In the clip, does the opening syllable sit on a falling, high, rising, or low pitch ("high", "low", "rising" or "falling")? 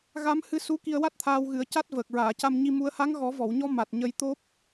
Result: rising